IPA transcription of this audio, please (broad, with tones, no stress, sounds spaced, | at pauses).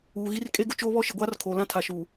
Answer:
uː˨ ɣ i˦ r kʼ e˦ ɡ ʊ˦ t͡ʃ oː˦ β ɔ˦ ʃ ɪ˨ ɡʷ aː˦ r kʰ oː˨ l ã˦ tʰ a˨ ʃ uː˨